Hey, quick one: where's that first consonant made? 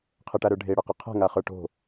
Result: uvula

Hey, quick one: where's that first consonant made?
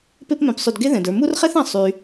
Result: lips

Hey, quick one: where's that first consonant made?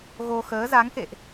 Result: velum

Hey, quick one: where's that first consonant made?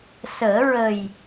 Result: tongue tip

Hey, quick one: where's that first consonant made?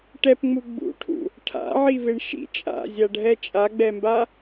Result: retroflex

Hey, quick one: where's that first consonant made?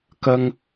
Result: velum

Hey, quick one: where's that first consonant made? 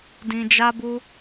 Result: tongue tip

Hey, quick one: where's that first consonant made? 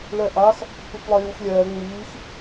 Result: retroflex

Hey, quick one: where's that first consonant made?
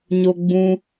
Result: palate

